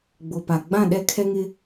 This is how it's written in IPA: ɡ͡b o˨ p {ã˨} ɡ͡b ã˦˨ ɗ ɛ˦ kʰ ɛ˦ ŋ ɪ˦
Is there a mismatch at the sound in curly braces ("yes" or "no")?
yes